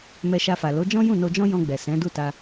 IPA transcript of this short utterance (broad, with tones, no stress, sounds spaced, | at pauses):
m ɛ˧ ʃ a˧ f a˨ l o˨˦ d͡ʒ ɔ̃˦ j ũ˦˨ n o˧ d͡ʒ ɔ̃˦ j ɔ̃˧ ɡ͡b ɛ˨ s ɛ̃˨˦ d u˦˨ t a˧